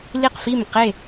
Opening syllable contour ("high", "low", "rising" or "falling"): falling